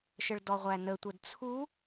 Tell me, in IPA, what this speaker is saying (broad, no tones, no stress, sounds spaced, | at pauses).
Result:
ʃ ə ɭ d ɔ ʁʷ æ n ə tʷ ə d t͡sʰ u